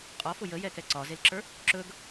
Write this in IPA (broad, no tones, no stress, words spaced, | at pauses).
qʼɒfʊ jəjɛ kɛǀɒzelǁə˞ | ǁɵɡ